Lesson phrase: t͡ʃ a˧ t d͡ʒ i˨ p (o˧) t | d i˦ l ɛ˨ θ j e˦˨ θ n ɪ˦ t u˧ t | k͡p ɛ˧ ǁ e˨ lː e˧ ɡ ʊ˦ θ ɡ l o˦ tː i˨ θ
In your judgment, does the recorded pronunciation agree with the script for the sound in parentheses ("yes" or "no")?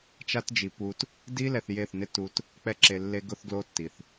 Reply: no